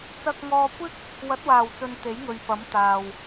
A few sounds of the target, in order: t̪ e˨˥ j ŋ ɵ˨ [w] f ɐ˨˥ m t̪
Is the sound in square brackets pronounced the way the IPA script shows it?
no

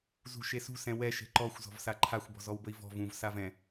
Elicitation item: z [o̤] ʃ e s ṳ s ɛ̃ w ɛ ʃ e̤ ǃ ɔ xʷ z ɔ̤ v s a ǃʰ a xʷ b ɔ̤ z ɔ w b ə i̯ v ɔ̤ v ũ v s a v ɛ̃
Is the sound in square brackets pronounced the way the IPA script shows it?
no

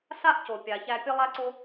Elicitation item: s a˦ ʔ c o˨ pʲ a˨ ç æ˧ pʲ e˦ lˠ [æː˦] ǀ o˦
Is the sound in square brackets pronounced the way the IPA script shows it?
no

